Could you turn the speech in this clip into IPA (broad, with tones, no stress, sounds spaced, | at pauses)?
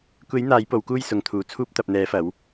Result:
kʷ e˨˧ j n̪ aː˨˧ j p o˨ w k uː˧ j s ʊ˨ ŋ t̪ʰ uː˨ t͡sʰ uː˧ p̚ t̪ ɐ˨ p̚ n̪ ɛː˨˧ f ɐ˨˧ w